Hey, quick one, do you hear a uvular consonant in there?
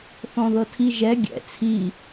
no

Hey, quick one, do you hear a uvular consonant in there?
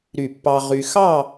yes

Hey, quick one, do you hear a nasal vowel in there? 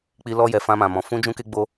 yes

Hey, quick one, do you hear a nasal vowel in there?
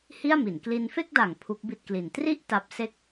no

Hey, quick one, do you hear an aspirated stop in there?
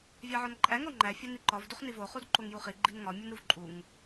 no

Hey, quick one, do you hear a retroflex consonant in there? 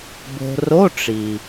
yes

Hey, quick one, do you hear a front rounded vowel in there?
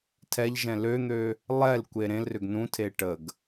yes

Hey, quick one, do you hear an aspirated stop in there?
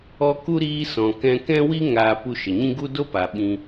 no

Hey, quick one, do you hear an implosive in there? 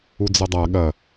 yes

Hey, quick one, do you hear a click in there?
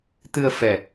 no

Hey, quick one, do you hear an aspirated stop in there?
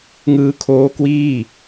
yes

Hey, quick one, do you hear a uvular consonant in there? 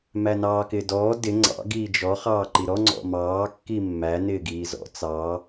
yes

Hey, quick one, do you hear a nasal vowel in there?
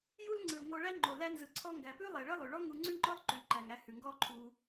no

